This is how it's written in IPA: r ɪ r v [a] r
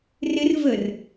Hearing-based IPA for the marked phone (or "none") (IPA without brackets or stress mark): ə